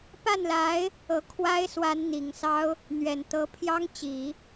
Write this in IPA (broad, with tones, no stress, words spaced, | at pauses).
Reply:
pa˥˩nla˧˥ɪ̯ | ɤ˧˥kʰwa˥ɪ̯ swa˧˥n n̪i˨˩ŋsɑ˥ʊ̯ | n̪ɥɛ˨˩nt̪ɤ˧˥pʰjɑ˥ŋt͡ɕi˨˩˦